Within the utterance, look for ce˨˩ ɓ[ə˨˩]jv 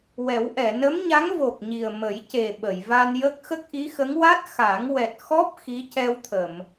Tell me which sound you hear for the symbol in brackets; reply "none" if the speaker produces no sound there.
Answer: ə˨˩˨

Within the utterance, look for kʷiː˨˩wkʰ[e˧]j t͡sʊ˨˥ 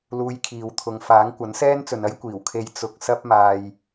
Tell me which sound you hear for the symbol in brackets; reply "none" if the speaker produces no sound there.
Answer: e˨˥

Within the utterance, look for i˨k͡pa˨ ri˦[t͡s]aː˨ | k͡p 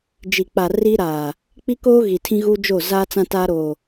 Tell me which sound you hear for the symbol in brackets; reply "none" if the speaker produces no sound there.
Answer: ɾ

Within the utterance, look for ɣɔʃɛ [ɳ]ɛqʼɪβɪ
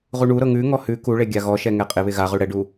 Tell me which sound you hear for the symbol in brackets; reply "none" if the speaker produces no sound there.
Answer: ŋ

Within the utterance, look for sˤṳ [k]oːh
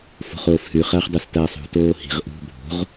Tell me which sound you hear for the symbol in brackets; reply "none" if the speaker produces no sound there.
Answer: t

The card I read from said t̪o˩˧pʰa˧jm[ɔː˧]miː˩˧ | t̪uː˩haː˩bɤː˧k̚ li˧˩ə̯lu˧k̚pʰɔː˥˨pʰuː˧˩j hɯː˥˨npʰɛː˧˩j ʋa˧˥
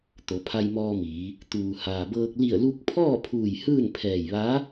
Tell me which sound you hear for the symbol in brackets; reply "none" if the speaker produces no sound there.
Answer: ɔː˧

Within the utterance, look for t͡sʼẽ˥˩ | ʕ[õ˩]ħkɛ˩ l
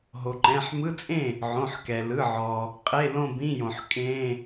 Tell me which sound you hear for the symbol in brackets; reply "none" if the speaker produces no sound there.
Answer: õ˩˧˩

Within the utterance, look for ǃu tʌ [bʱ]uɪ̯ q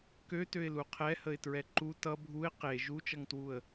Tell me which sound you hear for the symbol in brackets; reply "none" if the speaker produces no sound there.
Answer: bʱ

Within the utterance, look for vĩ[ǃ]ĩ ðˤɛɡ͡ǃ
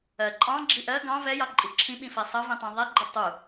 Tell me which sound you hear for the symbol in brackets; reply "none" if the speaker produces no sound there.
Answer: tˤ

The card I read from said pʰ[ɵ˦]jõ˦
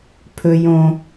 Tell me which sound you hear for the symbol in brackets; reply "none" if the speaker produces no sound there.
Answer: ɵ˦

